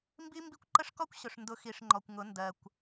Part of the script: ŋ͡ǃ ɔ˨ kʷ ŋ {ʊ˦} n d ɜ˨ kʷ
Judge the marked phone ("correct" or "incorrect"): incorrect